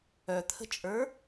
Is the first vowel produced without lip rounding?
no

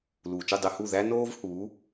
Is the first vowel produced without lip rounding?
no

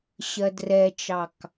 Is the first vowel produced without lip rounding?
yes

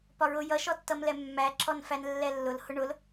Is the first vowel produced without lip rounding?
no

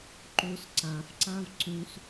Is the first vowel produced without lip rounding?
no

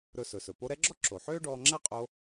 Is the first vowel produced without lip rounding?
no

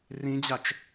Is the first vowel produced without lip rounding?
yes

